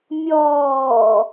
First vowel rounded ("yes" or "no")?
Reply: yes